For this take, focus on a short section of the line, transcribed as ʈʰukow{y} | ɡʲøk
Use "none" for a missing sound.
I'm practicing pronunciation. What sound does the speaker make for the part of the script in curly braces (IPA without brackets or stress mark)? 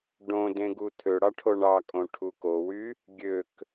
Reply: y